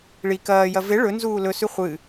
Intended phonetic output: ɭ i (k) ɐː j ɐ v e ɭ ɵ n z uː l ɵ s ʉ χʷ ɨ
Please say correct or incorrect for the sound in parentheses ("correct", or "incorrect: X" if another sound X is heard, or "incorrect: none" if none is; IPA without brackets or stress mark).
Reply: correct